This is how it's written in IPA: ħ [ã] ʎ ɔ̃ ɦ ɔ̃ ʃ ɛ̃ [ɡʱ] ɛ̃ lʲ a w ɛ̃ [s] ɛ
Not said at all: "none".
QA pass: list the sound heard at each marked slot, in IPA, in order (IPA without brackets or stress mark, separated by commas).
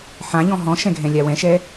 ã, ɡʱ, ʃ